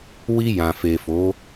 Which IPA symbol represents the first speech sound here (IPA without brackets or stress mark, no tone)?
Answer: w